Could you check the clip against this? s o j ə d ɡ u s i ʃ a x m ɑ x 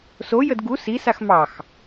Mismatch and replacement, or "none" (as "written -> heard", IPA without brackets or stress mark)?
ʃ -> s